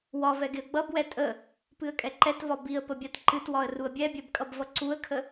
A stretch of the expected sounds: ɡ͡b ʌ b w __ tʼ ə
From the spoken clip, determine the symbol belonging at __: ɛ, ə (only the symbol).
ɛ